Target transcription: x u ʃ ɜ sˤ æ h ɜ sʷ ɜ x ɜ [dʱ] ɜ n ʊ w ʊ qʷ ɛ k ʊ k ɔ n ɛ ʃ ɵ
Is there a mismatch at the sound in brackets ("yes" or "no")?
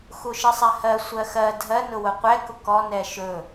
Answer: no